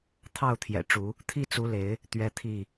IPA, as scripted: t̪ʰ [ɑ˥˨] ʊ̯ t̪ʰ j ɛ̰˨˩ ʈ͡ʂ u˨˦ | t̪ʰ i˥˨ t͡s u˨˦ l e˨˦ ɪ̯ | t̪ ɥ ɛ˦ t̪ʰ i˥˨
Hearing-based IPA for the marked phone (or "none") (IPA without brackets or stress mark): ɑ˥˨